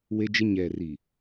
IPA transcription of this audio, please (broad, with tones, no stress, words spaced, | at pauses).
we˦d͡ʒɪ˦ ɲɛ˨ri˨